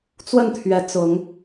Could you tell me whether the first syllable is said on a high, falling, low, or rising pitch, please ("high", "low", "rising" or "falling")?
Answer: falling